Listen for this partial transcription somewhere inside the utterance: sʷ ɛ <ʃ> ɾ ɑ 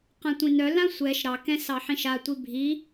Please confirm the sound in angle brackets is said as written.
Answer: yes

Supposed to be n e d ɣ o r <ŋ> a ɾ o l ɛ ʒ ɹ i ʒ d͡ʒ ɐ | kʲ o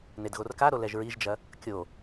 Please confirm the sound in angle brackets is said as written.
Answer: no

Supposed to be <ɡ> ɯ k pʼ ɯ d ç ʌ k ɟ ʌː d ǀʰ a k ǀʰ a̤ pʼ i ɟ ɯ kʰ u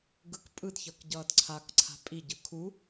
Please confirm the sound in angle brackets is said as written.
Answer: yes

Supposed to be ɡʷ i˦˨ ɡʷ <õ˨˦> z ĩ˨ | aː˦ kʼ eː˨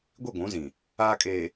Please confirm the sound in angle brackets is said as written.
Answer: no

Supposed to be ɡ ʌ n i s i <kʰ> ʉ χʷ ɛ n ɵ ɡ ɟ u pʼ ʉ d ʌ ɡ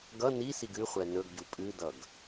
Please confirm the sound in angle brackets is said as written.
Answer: no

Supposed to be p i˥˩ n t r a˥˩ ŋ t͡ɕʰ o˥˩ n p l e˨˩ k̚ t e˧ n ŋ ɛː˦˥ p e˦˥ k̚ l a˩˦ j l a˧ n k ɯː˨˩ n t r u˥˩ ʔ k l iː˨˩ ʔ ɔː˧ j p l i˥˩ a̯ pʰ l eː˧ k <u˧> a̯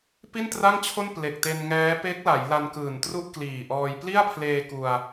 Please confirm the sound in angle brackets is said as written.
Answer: yes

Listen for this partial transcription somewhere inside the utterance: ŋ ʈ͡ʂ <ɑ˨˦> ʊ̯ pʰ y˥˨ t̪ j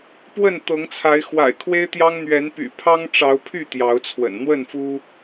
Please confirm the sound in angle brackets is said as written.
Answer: yes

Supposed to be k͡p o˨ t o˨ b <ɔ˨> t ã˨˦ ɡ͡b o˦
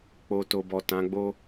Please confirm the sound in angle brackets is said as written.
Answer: yes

